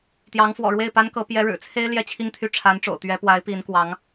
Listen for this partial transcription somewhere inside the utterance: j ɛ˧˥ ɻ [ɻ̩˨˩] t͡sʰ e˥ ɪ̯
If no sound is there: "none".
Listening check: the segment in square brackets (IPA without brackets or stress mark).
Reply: ɻ̩˨˩